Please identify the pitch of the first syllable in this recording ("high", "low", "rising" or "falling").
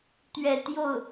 falling